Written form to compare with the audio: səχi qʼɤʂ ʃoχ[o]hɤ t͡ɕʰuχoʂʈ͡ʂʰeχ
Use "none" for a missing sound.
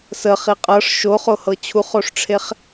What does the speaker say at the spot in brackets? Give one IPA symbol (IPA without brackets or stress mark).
o